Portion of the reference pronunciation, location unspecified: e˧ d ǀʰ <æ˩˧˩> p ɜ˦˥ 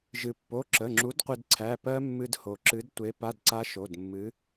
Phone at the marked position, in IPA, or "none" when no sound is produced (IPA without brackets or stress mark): æ˩˧˩